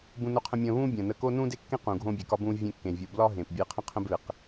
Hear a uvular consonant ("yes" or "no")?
yes